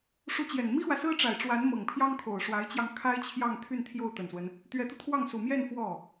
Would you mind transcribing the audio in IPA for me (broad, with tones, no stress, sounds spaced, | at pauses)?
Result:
ʂ u˧˥ t͡ɕ j ɛ˨˩ n m i˥ x w ä˨ s ɹ̩˥ ʈ͡ʂ a˨˩ ɪ̯ ʈ͡ʂ w a˧˥ n m ɤ˨˩ ŋ pʰ j ɑ˥ ŋ kʰ o˨˩ ʊ̯ ʂ w a˧˥ ɪ̯ t͡ɕ j ɑ˧ ŋ kʰ a˥ ɪ̯ t͡ɕʰ j ɑ˥˧ ŋ t̪ʰ y˥˧ n t̪ʰ j o˥˩ ʊ̯ t̪ ə˨˩ n s w ə˦ n | t̪ ɥ ɛ˧˥ t̪ u˧ t̪ʰ w ɑ˥˩ ŋ s u˨˩ m j ɛ˥˧ n f w ɔ˥˩